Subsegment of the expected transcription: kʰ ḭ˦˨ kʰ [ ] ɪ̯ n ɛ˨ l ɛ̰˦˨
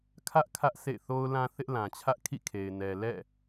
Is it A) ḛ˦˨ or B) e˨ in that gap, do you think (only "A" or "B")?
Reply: B